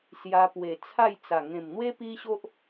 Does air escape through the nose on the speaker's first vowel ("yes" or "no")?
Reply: no